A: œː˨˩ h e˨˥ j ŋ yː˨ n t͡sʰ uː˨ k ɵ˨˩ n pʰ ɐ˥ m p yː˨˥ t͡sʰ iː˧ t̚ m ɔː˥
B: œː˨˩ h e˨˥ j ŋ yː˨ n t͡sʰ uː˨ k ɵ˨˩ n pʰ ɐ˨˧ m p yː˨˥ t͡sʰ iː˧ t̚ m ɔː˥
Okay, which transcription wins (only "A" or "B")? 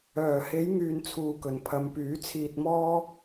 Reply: B